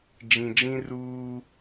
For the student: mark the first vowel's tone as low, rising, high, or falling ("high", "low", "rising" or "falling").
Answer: low